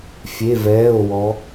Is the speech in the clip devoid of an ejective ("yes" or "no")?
yes